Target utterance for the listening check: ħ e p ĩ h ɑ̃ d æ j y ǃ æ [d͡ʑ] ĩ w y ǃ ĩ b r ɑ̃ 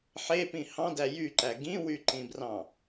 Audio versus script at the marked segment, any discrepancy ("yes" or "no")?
yes